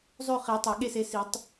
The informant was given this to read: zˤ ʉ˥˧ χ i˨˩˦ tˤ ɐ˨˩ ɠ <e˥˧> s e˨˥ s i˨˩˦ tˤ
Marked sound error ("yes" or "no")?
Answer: no